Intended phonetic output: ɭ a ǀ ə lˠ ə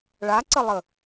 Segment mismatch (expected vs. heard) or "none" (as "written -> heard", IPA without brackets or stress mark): none